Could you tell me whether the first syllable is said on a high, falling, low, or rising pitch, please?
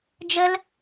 high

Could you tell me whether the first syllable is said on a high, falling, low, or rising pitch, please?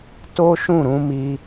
high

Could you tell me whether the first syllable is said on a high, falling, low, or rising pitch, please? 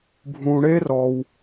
low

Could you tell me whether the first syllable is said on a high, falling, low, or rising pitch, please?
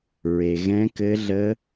low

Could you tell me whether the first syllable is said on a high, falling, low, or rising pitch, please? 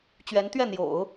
rising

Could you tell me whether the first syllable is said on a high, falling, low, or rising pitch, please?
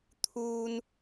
low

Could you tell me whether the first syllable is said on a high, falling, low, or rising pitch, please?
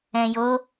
low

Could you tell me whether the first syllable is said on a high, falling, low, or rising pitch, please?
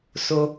high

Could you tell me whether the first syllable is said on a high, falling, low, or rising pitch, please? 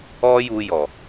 high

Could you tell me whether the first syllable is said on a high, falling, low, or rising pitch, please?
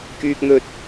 high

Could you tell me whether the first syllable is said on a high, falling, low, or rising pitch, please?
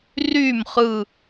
falling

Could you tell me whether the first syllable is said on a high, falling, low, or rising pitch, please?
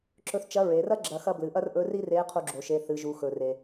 rising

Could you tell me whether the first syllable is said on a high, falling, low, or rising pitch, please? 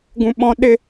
high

